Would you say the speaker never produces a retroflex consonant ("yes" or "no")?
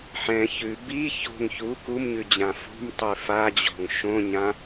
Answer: yes